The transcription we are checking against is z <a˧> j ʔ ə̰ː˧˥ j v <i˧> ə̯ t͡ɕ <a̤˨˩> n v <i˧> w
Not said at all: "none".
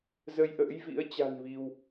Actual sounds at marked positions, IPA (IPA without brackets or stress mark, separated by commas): ə˧, ḭ˧˥, a̤˨˩, i˧